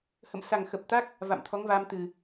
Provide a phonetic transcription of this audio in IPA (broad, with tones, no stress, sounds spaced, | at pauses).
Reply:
h ə̰˧˨ m s a˨˩ ŋ x ə˨˩ p̚ t̪ a˦˥ k̚ | v a̰˧˨ m t̪ʰ ɔ˨˦ ŋ v aː˧ m t̪ ɨ˨˩